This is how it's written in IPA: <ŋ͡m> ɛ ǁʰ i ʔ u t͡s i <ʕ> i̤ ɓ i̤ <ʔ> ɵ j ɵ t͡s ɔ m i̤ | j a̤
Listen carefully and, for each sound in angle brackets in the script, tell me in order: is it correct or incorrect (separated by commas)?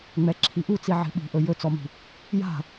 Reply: correct, correct, correct